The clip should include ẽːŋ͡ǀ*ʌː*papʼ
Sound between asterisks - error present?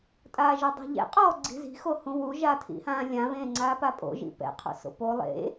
yes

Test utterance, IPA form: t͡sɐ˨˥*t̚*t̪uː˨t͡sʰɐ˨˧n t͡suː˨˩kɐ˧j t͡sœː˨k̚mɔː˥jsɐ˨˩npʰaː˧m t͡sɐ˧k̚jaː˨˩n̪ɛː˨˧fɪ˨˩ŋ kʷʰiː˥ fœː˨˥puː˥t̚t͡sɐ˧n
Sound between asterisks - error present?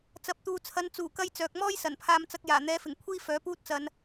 yes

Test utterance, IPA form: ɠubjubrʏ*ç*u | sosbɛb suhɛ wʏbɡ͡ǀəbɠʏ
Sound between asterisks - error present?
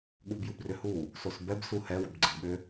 yes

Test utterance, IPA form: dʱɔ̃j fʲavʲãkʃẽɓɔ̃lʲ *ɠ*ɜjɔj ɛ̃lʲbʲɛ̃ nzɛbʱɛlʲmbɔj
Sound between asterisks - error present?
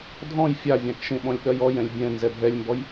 no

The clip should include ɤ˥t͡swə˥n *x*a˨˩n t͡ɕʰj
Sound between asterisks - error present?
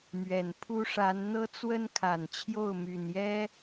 yes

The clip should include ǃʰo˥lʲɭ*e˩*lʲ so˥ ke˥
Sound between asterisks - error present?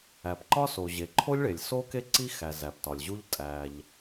no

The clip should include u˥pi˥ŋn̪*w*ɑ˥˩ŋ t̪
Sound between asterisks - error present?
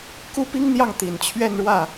yes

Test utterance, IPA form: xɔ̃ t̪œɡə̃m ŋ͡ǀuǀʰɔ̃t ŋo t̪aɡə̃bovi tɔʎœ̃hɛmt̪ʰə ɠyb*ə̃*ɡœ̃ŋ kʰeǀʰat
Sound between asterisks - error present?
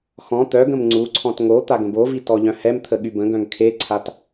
no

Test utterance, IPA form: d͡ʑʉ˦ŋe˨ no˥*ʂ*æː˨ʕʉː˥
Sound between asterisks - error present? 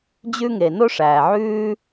no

